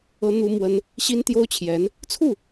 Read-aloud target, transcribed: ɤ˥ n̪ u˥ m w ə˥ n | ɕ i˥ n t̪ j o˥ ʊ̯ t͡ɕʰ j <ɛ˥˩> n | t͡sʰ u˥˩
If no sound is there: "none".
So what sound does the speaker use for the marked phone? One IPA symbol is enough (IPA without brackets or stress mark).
ɛ˧˥